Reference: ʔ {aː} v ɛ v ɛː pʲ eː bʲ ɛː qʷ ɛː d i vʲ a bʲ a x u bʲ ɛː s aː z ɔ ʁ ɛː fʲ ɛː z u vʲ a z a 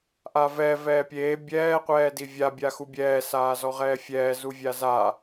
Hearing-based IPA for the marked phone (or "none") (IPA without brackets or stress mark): a